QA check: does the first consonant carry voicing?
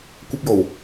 no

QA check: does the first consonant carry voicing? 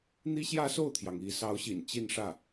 yes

